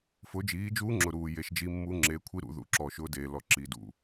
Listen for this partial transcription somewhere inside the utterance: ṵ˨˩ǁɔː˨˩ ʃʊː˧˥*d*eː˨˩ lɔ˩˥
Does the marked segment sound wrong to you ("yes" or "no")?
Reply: no